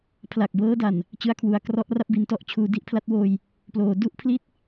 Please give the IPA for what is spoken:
pʰla˨˩k̚bɤː˦˥da˨˩n | t͡ɕɯ˧a̯kʰwu˩˦a̯krɔ˦˥ʔra˦˥p̚ bi˧ntɔ˦˥ʔ t͡ɕʰuː˩˦di˦˥ʔpʰla˦˥t̚woː˧j | ploː˩˦du˥˩ʔpʰli˥˩t̚

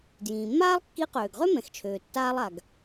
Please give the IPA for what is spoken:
djĩː˩mːaː˥lˠkːi˧˥ qøː˩ɡʁø˥ mɛ̃˩xt͡ʃʰøː˩tːaː˧lˠ a˩ɡ

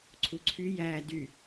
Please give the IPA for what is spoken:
ǀʰuǀʰy jæ dy

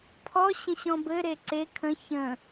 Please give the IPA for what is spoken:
pʰɔɕə̃ ɕɔ̃bɘɾe ǀe kʰə̃ çə̃

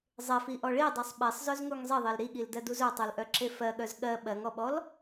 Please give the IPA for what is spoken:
zˤefiʔɔ ɭidˤisˤ ɓesˤzœzŋuŋ zˤeðˤel ɾiɠildɜduz œtˤulʔœǁe fɜɠœz ɠɜ ɓɜŋɔɓɔl

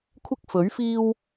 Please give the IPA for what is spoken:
kʷʰɪ˥k̚fɵ˨˥ɥfiː˥w

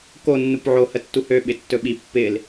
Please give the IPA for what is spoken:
ko nːupʕo hətːuhø ɓɪtːɵɓi pːɪl

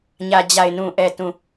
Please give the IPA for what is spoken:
ɲä˨d͡ʑa˨ɪ̯nũ˨ ʔɛ˨tũ˨

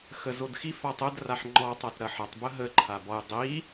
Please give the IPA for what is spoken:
xəzodxi fatˤəd raħŋ͡ǃɔ tˤɐtɾɐħɐtˤ bəɦə ǃʰabɔj dˤi

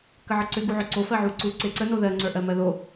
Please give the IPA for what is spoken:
kəʕəǀʏ ɡuʕʏ ǀo fɜʕuǀu ǀeǀə noðɜ ŋ͡ǀə˞ʔɜmɜðo

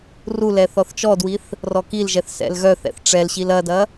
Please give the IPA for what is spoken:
rulɛ θɔθt͡ʃɔdwiθ | rɔkilʒɛθ sɛ̰lɣœθɛ̰θ ʈ͡ʂɛlɕil ɐdɐ

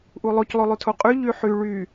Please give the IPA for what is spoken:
ʔulˠoc lˠolˠytʰoqʼy ʎyħy ɭy

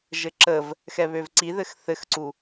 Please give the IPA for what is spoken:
ʒɘǁəv | xɛβøvǀiðɘx θɘxǀu

